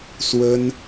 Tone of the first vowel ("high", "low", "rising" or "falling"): high